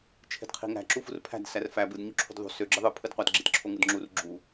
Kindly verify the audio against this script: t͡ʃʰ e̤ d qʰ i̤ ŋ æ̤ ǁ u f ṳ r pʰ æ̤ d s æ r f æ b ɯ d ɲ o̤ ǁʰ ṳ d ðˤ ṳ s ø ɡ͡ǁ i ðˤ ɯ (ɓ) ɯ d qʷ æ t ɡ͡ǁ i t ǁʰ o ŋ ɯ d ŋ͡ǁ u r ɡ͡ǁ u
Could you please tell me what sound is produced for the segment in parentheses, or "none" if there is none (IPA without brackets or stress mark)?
pʰ